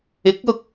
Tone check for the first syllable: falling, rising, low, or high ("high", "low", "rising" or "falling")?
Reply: rising